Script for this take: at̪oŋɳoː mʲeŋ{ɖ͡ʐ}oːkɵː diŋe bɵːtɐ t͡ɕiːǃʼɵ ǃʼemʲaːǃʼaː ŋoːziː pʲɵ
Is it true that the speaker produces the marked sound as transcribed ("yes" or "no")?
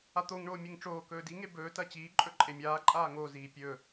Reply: no